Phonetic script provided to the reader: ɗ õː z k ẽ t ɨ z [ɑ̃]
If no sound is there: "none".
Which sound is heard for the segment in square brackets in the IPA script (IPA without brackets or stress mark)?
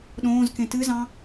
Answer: ɑ̃